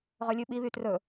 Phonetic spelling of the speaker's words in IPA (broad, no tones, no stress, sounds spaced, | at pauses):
ʁ ɵ lʲ ʉ ɓ i β y t r ɵ